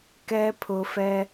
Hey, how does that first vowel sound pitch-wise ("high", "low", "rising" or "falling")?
low